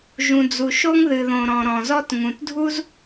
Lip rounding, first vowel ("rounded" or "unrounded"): rounded